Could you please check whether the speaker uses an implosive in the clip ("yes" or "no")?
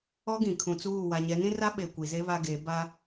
yes